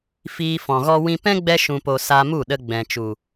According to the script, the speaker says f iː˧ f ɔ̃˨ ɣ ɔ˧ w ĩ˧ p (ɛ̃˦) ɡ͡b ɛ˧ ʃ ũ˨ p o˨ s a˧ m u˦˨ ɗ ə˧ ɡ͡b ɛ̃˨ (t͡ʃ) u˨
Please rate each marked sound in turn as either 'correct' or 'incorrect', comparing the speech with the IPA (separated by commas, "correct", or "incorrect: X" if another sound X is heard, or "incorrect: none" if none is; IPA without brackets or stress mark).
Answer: correct, correct